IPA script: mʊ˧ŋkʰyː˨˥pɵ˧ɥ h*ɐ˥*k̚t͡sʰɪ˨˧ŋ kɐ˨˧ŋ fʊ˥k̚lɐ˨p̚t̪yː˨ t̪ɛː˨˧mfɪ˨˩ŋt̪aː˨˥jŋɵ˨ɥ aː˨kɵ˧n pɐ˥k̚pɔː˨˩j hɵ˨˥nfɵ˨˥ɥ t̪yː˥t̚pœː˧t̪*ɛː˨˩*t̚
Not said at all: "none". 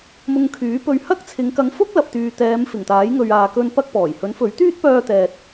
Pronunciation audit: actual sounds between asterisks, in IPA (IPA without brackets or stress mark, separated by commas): ɐ˥, ɛː˨